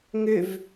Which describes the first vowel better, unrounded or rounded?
rounded